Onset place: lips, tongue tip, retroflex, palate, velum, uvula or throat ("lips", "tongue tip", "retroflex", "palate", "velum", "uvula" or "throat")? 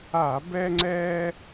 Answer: lips